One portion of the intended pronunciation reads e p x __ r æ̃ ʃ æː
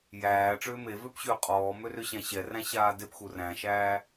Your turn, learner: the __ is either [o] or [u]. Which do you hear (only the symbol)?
u